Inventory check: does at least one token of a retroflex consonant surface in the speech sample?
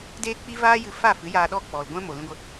no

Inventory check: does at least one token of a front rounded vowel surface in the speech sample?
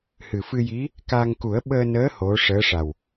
no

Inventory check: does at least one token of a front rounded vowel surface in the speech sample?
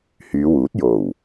yes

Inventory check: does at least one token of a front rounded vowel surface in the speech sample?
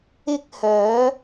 yes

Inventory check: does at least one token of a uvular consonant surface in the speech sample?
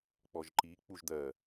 no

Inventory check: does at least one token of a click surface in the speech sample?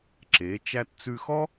yes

